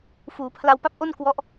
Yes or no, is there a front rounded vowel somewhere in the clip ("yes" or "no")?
no